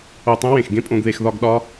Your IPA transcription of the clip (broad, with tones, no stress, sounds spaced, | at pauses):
o˧˩ tˤ õ˥ w ẽ˧˩ x ɡ ẽ˥ pʼ õ˧ ɡ ð e˧ x ð ɒ˥˧ ɡ ɗ ɒ˥